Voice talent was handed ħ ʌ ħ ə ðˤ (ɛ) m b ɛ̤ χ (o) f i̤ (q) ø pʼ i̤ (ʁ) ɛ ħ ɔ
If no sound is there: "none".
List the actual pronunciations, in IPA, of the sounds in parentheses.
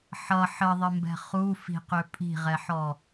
ɘ, u, q, ʁ

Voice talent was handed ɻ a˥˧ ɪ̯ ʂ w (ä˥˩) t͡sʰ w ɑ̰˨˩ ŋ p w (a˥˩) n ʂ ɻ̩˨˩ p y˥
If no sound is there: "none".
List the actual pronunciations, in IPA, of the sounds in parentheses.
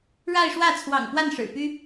ä˥˩, a˥˩

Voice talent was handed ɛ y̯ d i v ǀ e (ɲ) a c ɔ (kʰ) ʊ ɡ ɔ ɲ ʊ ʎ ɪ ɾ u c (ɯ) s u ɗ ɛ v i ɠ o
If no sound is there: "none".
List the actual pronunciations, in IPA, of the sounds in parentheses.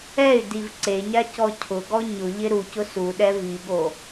ɲ, cʰ, ʊ

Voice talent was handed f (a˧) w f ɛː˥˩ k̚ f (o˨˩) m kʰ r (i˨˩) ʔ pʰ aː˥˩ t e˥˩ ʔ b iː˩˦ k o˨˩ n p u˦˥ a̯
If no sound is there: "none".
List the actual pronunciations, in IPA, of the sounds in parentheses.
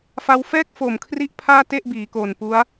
a˧, o˨˩, i˦˥

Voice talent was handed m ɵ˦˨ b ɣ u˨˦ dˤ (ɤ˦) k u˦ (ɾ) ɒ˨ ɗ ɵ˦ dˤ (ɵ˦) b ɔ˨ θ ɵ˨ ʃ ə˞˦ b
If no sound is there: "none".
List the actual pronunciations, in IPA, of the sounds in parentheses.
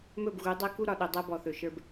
ɤ˦, ɾ, ɤ˦

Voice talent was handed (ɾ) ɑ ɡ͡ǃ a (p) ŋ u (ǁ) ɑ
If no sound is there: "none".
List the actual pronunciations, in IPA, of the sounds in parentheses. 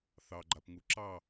θ, p, ǁ

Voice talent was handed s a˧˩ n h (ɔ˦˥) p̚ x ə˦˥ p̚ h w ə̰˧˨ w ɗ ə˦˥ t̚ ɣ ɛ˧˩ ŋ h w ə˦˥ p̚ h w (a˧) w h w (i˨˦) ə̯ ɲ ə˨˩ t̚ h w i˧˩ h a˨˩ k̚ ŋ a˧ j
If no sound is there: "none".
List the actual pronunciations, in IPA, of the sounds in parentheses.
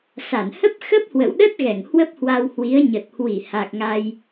ə˦˥, a˧, i˨˦

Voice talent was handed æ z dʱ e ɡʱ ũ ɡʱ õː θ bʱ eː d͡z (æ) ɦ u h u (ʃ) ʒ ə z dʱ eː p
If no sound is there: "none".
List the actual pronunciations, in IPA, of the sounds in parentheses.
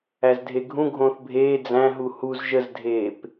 æ̃, z

